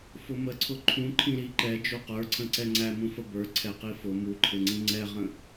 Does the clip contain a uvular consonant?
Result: yes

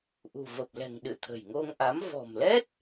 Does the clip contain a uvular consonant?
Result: no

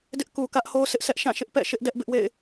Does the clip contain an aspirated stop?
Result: no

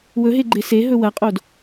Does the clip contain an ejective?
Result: yes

